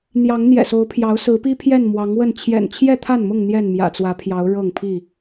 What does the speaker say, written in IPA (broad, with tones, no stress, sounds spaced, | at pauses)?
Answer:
n̪ j ɑ˨˦ ŋ n̪ j ɛ̰˨˩ s o˨˦ ʊ̯ pʰ j ɑ˨˦ ʊ̯ s ɹ̩˨˦ p i˦ pʰ j ɛ˥˨ n m w ɑ˨˦ ŋ w ə˥˨ n t͡ɕʰ j ɛ̰˨˩ n t͡ɕʰ j ɛ˥˨ t̪ʰ a˥˨ n m ʊ˥˨ ŋ n̪ j ɛ˥˨ n m j ä̰˨˩ t͡s w ä˨˦ pʰ j ɑ˨˦ ʊ̯ ɻ ɤ˥˨ ŋ pʰ i˥˨